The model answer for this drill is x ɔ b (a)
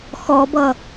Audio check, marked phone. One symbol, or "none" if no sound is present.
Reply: ʌ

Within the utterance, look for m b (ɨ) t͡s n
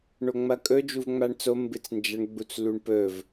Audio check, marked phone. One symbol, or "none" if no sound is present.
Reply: ɨ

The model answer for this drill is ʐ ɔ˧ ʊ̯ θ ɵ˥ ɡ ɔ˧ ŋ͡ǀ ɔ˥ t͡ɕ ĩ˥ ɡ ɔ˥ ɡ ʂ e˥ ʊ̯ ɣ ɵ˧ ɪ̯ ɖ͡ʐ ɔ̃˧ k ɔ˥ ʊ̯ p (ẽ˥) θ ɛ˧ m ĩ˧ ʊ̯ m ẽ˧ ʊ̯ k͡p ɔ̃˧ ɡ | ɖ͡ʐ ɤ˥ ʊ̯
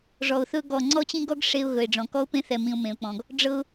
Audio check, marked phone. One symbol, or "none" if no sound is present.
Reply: ẽ˥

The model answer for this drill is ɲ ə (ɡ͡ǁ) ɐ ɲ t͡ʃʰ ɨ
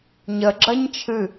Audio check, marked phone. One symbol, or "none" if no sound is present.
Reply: ɡ͡ǁ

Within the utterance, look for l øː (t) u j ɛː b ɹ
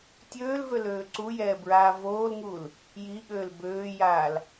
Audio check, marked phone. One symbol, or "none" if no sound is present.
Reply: ǀ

